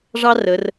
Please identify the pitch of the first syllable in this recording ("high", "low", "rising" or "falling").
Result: high